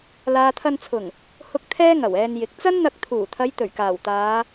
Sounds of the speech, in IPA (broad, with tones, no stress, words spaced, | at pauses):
laː˨t̪ʰɐ˧nt͡sʰʊ˨˩ŋ | hʊ˧k̚ t̪ʰɛː˥ŋɐ˨˩wɛː˧njɪ˨˥k̚ t͡sɐ˥n n̪ɐ˧k̚t̪ʰuː˨˩t̪ʰɐ˨˧j t̪ɵ˨˩ɥkaː˨˩wt̪aː˨˧